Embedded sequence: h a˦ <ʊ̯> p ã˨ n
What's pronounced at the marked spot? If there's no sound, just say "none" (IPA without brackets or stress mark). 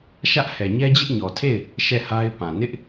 ɪ̯